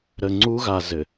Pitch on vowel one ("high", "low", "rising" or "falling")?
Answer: low